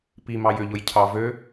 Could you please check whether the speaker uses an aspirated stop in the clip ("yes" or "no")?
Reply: yes